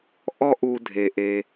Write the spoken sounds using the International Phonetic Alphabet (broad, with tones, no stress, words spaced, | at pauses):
ʔɔ˦ʔu˨dʱe˩ʔe˩